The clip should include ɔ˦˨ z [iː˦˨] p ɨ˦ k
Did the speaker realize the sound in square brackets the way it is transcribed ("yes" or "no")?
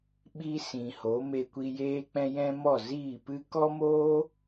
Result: yes